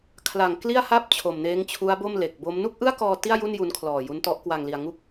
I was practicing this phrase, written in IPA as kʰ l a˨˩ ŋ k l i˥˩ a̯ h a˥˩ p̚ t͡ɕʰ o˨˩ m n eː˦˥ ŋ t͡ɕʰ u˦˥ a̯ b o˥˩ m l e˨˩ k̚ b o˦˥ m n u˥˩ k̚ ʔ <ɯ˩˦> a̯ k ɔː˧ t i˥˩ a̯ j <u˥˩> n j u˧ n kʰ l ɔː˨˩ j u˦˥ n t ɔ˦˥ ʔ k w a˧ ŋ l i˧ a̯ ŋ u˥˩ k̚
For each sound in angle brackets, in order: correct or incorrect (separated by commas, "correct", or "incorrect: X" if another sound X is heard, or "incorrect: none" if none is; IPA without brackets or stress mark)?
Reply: incorrect: ɯ˥˩, correct